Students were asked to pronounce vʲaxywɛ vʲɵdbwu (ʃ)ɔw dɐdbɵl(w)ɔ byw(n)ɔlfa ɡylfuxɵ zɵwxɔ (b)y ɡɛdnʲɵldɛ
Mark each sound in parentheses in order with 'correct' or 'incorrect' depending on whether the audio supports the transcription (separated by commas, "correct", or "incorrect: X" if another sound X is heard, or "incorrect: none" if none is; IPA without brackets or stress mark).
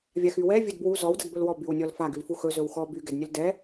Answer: incorrect: z, correct, incorrect: nʲ, correct